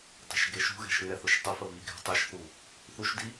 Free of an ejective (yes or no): yes